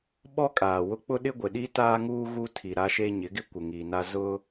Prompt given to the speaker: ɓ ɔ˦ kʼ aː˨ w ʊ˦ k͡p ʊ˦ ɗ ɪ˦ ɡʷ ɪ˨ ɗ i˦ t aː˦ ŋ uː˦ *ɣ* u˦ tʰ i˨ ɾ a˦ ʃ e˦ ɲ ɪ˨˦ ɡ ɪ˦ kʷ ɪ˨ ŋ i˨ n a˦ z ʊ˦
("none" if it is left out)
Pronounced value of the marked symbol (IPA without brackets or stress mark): ɣ